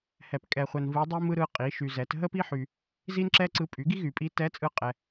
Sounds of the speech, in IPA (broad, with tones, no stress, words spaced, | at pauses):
hɛ˨pkʼɛ˨χʷɛ˨n vɯ˧˥dˤi˥mɯ˥ɾɯ˧˥ qʼi˩˥ʃy˨zɛ˩˥t ɦə˥pi˥ħy˨ | zi˥nǁɛ˥ǀɯ˧˥ pʼy˩˥ɡi˥ɣy˨pʼi˧˥ tɛ˧˥t͡sʼɯ˧˥qʼɛ˨